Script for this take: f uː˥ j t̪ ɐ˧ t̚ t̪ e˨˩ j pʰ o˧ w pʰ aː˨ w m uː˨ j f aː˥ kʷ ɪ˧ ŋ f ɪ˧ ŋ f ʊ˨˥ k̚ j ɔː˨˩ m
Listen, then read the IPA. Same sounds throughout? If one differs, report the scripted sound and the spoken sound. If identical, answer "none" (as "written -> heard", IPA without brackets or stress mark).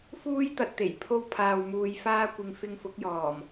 none